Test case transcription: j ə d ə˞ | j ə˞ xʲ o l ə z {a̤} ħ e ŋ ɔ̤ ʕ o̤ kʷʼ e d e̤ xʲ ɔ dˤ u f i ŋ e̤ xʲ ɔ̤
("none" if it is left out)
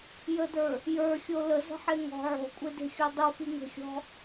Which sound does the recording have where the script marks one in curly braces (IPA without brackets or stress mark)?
ə̤